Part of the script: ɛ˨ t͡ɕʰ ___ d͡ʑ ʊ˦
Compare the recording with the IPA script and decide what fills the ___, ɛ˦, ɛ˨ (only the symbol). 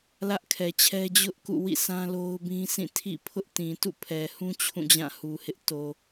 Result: ɛ˦